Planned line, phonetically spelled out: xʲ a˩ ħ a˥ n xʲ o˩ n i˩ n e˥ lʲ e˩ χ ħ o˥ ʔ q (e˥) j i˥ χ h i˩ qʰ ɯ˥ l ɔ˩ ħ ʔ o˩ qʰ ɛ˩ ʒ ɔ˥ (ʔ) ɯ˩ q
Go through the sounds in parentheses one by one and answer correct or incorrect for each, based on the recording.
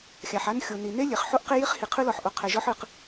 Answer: correct, incorrect: ħ

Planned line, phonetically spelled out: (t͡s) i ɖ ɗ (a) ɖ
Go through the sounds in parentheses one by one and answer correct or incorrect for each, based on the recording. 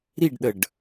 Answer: incorrect: ɾ, incorrect: ə

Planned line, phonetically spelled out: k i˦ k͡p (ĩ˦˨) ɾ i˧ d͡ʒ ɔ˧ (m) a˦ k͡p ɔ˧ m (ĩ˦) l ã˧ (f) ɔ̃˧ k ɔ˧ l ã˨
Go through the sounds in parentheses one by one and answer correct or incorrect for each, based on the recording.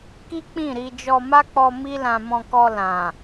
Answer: correct, correct, incorrect: i˦, incorrect: m

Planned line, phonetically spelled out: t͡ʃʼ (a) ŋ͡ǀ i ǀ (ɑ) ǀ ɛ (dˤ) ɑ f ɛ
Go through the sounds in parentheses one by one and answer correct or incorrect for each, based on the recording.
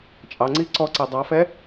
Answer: incorrect: ɑ, incorrect: ɔ, correct

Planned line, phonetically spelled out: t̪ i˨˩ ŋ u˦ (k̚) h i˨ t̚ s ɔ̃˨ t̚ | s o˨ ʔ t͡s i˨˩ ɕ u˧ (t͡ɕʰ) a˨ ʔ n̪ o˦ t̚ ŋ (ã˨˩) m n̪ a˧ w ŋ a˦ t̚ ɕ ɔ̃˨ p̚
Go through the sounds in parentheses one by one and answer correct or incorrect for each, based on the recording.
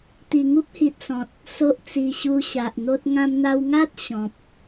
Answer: incorrect: p̚, incorrect: ɕ, incorrect: ã˧

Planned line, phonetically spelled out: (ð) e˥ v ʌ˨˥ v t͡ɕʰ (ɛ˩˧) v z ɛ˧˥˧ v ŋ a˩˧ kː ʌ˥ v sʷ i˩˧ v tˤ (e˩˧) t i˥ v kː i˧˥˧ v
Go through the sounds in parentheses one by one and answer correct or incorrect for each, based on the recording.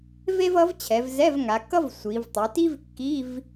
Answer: incorrect: v, correct, correct

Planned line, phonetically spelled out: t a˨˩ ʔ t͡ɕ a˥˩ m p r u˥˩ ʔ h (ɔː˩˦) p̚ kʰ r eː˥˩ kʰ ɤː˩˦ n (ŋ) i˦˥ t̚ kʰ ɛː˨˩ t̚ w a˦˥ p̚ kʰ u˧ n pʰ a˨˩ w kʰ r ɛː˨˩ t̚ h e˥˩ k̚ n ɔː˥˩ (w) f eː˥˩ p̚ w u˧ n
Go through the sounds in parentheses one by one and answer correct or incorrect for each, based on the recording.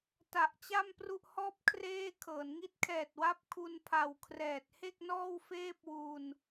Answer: incorrect: ɔː˥˩, correct, correct

